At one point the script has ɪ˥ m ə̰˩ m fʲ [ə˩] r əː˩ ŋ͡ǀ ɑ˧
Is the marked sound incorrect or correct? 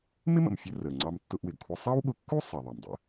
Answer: incorrect